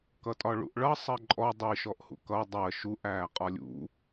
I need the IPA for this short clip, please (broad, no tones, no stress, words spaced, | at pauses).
kʌtʼɒɭṵʔɭʌ sˤɜǃʼɔ dˤiʃɔʔhṵ kʌ dˤɜ ʃuʔæː qʼɒlʲṵ